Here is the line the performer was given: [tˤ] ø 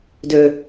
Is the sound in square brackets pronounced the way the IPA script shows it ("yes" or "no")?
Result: no